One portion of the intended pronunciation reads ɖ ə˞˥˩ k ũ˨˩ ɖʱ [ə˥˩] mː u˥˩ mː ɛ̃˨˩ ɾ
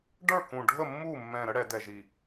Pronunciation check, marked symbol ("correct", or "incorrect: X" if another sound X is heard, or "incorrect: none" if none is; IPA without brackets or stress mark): correct